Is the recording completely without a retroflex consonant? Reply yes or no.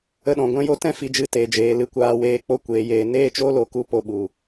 yes